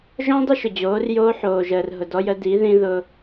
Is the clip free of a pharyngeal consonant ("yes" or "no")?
no